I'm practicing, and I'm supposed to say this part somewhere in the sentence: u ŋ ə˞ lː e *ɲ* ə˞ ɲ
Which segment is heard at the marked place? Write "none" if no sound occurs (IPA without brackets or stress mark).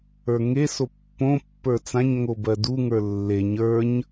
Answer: ɲ